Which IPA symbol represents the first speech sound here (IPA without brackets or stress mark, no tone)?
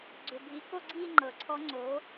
ɡ͡ǀ